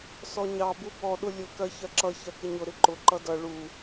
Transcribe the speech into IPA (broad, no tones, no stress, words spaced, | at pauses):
sɔɲɑ bubɔ ɗʊlʲʊ kɜçɜǁʌ çɜkɪɲʊ ɾɪǃʊ ǃʌdʌ ɭu